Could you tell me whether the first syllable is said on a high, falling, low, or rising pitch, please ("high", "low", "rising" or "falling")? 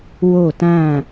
falling